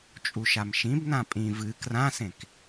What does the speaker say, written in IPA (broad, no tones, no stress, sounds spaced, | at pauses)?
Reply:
t͡ʃʼ u ʃ a m ʃ ĩ b n ã pʼ ĩ v ɨ k r ã s ẽ k